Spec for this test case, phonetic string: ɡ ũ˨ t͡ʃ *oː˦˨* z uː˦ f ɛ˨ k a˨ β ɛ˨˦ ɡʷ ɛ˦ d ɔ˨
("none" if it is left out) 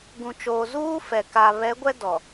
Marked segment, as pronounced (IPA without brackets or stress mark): oː˨